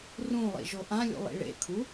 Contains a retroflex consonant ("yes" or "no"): yes